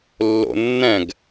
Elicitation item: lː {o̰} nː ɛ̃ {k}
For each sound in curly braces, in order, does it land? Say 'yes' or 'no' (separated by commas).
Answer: yes, no